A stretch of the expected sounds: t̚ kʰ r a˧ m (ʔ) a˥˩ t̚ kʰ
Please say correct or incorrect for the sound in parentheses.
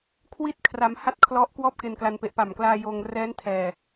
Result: incorrect: h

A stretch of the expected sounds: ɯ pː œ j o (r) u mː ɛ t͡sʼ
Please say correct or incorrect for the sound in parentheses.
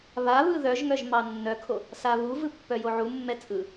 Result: incorrect: ʕ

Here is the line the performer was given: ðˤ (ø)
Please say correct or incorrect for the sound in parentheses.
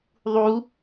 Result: incorrect: u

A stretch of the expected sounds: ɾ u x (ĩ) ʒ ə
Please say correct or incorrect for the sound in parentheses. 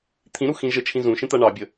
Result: correct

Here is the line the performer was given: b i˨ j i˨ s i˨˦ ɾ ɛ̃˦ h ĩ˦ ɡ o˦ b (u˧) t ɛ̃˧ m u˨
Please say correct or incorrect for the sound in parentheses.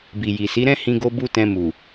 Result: incorrect: u˦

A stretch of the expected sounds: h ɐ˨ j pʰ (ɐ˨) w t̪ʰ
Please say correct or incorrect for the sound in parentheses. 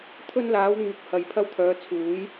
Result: incorrect: ɐ˧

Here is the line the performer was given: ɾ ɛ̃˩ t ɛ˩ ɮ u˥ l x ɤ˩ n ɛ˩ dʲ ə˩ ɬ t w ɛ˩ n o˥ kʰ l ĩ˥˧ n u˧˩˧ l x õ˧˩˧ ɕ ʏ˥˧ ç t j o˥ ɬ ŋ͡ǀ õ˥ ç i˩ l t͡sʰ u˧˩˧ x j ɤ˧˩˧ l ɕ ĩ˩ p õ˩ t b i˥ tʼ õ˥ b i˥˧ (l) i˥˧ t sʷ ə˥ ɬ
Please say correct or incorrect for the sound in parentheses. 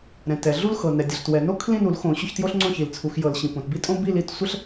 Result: correct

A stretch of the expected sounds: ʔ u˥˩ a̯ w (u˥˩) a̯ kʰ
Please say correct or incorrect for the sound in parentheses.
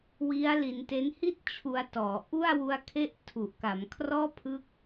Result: incorrect: u˦˥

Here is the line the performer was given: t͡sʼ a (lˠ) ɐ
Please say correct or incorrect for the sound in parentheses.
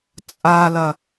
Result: incorrect: l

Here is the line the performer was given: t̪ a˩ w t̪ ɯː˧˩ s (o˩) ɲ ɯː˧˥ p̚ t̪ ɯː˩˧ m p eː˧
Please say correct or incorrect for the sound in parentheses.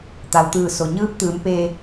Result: correct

